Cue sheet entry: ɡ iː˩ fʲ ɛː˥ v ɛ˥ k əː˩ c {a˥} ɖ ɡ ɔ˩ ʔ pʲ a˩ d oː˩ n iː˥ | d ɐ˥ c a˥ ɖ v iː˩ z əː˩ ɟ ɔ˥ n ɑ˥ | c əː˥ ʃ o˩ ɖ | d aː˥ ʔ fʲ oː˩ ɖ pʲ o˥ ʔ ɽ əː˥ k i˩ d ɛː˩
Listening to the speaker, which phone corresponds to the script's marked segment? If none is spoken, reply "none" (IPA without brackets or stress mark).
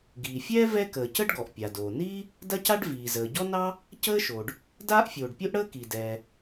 ə˥